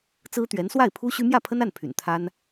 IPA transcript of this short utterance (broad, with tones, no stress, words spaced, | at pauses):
t͡sɹ̩˥t̪ɥɛ˧˥n swa˥˩ɪ̯pʰu˥ɕy˥ mjä˥˩pʰə˥na˥˩n pʰy̰˨˩nt̪ʰa˥n